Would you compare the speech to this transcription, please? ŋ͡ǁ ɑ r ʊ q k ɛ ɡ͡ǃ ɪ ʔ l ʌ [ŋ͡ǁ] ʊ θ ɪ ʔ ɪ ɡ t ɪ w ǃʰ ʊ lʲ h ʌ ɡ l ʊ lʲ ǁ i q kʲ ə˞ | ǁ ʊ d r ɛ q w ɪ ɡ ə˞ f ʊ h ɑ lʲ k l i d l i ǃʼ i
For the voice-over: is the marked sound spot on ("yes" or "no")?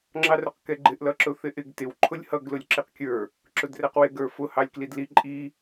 no